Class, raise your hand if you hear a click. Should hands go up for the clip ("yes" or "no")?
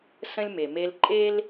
yes